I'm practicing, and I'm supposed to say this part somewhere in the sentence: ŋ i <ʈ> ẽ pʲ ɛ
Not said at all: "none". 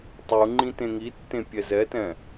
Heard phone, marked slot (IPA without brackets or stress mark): tː